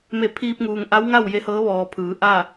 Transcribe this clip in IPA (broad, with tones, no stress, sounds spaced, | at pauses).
m e˧˩ pʰ iː˧ p̚ ŋ uː˩ ŋ ʔ a˧˥ w ŋ a˥˨ w j e˧˥ h ɤː˧˥ ʋ ɔː˩ pʰ ɯː˩˧ ʔ a˥˨